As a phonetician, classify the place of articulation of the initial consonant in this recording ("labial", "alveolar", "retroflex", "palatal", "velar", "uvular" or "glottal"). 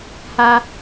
glottal